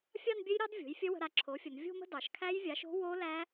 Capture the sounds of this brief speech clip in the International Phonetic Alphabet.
fʲ ɑ˥˧ n bʲ ɘ˦˥ j ɾ ɑ˦˥ d vʲ o̤˩˥ j fʲ ə˦˥ w ə̤˧ ɾ a˧ ǁʰ o˩˥ fʲ ə˩˧ n vʲ o̤˥˧ m ə̤˥˧ d ɑ˩˧ ʃ kʰ æ˦˥ j vʲ a˩˥ ʃ o̤˦˥ w o˦˥ l æ˦˥

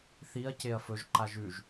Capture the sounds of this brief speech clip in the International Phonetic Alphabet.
θ i ɐ̯ c e ɐ̯ f ɵ ʒ ǃ a ʒ ʉ ʒ

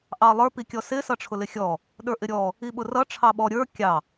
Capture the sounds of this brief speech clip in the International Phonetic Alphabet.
ʔ ɑ lˠ ə˞ p i kʲ ɔ s ɪ s ʌ ʈ͡ʂʰ ʊ l ɪ xʲ ɔ | ɗ ə˞ ʔ ɪ ɾʲ ɔ | i ɓ ʊ r ʌ ʈ͡ʂʰ ɑ ɓ ɔ ɾʲ ə˞ kʲ ɑ

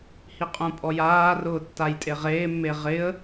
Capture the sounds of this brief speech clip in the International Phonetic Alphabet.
h i qʼ ũ pʼ ɔ j aː r ʊː tː a j tʼ e ʁ eː mː e ʁ ɪ ə̯

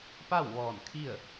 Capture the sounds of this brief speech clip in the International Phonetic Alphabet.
p a˥˨ w ʋ ɔː˧˩ n kʰ i˥˨ ə̯

